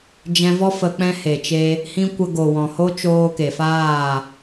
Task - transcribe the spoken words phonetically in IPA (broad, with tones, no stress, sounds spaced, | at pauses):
d͡ʒ ɛ̃˧ v ɔ˦ f ə˧ k͡p ɛ̃˦ h e˨ t͡ʃ e˧ | h ĩ˦ kʷ ə˧ ɡ o˨ w ɔ̃˨ h o˦ t͡ʃ oː˧ k e˨ f aː˦˨